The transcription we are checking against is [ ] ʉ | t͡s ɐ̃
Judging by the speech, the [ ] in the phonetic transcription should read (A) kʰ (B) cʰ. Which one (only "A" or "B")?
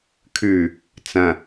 A